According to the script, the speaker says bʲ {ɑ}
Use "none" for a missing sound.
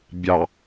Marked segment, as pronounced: ɑ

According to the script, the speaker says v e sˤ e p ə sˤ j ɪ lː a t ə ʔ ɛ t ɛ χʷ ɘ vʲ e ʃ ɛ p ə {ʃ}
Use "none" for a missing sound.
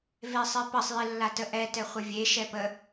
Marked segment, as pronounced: none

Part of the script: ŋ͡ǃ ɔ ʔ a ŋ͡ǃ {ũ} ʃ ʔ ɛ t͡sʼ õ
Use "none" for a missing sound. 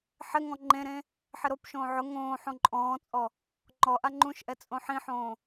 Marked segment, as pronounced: ũ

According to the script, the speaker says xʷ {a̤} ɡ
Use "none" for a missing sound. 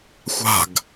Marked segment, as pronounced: a̤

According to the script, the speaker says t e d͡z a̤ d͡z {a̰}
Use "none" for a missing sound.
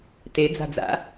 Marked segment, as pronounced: a̰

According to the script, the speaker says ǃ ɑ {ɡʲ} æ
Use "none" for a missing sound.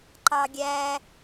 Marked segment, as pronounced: ɡʲ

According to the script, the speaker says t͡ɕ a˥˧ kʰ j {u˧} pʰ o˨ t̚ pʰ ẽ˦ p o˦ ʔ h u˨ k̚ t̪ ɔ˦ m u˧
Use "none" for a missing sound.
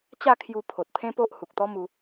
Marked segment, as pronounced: u˧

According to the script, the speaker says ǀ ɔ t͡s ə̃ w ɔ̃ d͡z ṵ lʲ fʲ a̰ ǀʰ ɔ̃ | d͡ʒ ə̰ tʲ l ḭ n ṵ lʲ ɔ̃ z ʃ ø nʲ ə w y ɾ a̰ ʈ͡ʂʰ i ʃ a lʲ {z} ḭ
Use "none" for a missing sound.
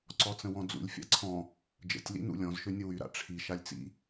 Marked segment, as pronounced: t͡s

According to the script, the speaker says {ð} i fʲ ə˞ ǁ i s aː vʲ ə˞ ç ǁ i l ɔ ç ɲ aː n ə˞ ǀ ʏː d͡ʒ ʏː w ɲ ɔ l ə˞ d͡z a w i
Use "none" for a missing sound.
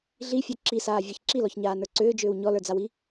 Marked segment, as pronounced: ɮ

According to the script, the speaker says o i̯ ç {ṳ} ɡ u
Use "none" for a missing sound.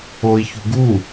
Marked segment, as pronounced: ṳ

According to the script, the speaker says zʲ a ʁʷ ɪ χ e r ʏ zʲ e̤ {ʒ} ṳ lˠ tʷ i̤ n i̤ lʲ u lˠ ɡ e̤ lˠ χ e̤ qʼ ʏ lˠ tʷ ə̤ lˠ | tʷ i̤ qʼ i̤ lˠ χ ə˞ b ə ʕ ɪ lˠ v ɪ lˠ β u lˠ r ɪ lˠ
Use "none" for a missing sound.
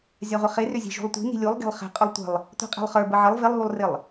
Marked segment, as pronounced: ʒ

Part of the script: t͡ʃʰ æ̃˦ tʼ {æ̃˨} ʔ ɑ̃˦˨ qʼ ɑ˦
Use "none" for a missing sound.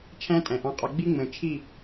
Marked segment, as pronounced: æ̃˨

